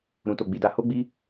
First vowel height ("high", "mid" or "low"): high